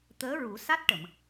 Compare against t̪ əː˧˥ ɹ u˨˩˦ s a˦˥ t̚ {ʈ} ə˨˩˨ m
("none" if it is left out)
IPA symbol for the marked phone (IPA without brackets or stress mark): ʈ